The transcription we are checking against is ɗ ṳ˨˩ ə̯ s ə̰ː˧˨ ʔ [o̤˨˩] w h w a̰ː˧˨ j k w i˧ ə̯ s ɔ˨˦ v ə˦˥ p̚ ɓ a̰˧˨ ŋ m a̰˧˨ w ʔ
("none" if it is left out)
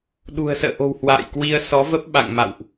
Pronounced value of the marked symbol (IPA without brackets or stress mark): o̤˨˩